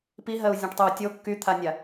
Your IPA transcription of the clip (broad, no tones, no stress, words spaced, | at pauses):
piɦɜu̯zʲɔ̃ʈtˤyu̯ tʲo kːyt̪ʰanʲa